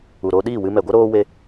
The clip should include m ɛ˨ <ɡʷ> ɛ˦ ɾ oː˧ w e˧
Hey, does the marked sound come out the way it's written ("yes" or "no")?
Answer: yes